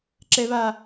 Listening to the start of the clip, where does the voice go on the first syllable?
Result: high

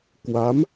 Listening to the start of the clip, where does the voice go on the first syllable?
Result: rising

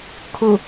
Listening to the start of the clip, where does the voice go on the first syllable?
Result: falling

